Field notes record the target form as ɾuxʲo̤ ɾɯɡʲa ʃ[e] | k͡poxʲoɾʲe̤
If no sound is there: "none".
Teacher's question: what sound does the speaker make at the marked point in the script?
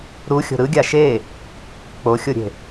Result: e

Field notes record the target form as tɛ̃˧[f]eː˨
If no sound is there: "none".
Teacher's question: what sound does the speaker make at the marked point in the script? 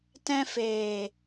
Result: f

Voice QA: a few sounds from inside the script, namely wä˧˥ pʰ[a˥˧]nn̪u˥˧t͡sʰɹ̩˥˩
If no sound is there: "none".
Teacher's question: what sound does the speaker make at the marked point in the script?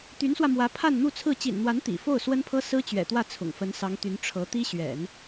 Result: a˥˧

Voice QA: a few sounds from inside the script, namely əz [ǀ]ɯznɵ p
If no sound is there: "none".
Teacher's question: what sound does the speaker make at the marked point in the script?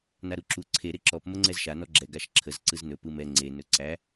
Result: ǀ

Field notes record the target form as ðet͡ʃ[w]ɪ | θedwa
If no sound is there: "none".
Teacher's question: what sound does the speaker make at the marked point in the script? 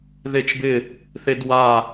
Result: b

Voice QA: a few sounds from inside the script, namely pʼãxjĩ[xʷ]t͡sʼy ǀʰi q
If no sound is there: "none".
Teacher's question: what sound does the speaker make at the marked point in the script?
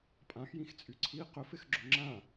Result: x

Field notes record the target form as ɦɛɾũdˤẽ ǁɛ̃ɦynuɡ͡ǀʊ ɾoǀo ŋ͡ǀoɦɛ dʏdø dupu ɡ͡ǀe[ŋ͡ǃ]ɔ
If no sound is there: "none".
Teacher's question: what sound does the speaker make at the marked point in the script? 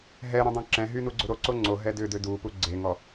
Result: ŋ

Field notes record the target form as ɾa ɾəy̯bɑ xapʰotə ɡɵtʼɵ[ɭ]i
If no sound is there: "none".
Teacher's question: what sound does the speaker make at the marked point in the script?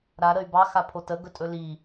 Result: l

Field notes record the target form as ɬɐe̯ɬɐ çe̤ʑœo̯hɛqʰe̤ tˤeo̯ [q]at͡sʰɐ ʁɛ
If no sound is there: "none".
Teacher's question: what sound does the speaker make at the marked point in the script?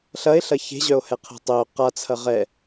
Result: q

